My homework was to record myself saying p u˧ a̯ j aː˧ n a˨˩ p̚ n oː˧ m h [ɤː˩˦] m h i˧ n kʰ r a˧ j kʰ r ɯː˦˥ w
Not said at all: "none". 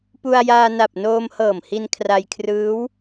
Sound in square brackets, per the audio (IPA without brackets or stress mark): ɤː˨˩